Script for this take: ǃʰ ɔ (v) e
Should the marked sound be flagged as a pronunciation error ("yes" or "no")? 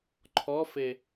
yes